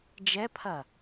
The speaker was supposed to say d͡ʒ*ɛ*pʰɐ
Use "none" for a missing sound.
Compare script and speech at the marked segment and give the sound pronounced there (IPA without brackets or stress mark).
ɛ